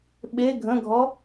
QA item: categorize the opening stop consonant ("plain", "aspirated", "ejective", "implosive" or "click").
implosive